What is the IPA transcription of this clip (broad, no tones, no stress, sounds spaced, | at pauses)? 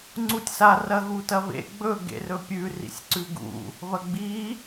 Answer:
ŋ͡ǀ u tʲ s a r ɐ ɣ u t ɐ β ḛ ɡ͡b ɵ ɡ ḛ r ɵ pʲ ʉ r ḭ sʲ ǀ ʉ ɡ ṵ | β ɐ ɡ͡b i